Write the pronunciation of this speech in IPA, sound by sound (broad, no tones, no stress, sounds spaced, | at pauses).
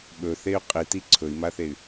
ɓ ɵ θ e y̯ qʼ i t i ǀʰ ɵ i̯ m a θ e y̯